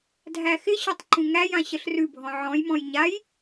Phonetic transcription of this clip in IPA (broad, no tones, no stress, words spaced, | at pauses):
dʱæxɪɕɔtˤ ǃũŋæjã ɕəɬrʉbʱɔ̃ ʕɔ̃jmɔ̃j ɲaj